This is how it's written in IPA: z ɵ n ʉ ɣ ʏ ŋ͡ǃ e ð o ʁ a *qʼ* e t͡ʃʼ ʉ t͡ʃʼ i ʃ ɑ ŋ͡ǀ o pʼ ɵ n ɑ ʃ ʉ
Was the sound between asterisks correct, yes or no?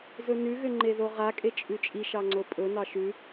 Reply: no